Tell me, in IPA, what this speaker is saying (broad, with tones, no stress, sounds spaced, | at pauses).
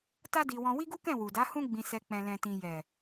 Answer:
t a˦ d i˧ w ɔ̃˧ w i˦ ɡ u˦ k ɛ̃˦˨ w u˨ d a˨˦ h ũ˦ ɡ͡b ĩ˧ s ɛ˧ k͡p ɛ̃˨ l ɛ̃˨ t ĩ˨ j ɛ˨